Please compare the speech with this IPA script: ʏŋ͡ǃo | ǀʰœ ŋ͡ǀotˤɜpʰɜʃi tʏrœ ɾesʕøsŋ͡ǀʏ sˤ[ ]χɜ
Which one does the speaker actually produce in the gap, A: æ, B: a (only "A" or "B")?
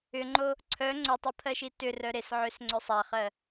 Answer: B